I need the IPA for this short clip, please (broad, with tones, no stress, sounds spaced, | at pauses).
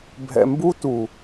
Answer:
bʱ ɛ̰˨ m b u˦ t u˨